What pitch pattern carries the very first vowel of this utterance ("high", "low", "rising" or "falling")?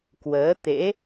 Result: rising